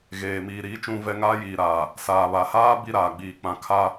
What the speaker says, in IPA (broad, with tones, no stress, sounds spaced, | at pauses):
ɣ eː˨ m iː˨ ɾ iː˨˦ t͡ʃ ũ˦ v ɛ˦ ŋ aː˦ j iː˨ ɾ aː˨ | s aː˨ β a˨ h aː˦ b i˦ ɾ aː˨ ɡ͡b iː˨ k͡p ã˨˦ kʰ a˦